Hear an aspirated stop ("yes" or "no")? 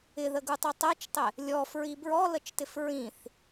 no